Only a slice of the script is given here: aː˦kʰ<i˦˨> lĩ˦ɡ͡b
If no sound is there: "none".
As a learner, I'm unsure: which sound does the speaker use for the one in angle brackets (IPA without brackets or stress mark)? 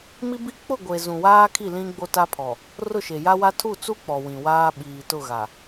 i˦˨